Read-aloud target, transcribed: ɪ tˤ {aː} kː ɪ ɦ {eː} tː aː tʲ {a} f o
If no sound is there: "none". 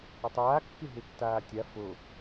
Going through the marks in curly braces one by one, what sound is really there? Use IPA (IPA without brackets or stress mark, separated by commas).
aː, e, a